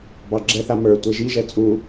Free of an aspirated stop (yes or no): yes